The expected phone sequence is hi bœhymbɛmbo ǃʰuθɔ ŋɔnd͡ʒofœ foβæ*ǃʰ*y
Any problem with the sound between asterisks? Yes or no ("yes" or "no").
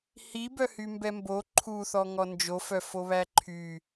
no